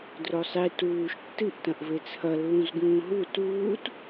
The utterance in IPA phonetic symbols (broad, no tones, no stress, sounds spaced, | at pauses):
d r o sˤ i t uː ʃ tː ɨ ʔ t ɐ̃ ʔ v e t͡sʰ ɐ lː ũ z ɡ ũː ɦ u t uː t